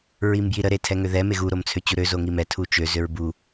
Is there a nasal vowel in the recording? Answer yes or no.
no